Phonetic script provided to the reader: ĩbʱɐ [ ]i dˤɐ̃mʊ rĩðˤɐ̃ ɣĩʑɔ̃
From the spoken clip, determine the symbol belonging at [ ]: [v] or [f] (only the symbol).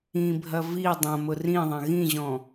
v